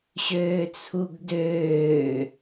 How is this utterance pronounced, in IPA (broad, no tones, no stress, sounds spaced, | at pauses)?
ɕ øː t͡sʰ u ɡ d øː